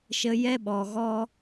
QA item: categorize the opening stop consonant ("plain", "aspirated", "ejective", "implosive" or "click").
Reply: implosive